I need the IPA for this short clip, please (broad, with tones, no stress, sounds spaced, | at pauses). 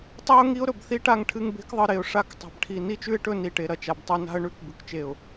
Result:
tˤ i˦ ʊ̯ ŋ i˦ ʊ̯ ɾ ɵ˨ b θ i˦ ʈ a˦˨ ŋ ʈʰ ɨ˦ ŋ b e̤˦ k ðˤ ɨ˨ ɾ e˨ ʊ̯ ʂ a˦ k tˤ a̤˨ b ʈʰ i˨ n i˦ t͡ʃ ʉ˦ ɪ̯ ʈ ɵ˦˨ n i˨ ʈ e˨ ɾ ɐ˨ t͡ʃ a˨ b tˤ ɵ˦ n a̤˦ ə̯ ɳ ʉ˦˨ k b ʉ˨ k t͡ʃ e˨ ʊ̯